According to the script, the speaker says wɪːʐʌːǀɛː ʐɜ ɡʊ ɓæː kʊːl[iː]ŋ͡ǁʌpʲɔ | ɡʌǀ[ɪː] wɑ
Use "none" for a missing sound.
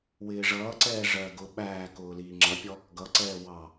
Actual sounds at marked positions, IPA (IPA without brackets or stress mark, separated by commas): iː, ɛː